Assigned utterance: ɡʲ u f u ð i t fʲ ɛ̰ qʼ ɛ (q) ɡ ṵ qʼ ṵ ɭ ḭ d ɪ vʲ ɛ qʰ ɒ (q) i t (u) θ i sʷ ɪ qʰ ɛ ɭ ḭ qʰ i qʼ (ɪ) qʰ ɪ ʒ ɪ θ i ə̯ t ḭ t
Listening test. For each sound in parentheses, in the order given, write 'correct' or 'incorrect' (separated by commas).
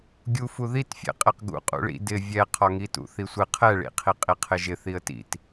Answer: correct, incorrect, incorrect, incorrect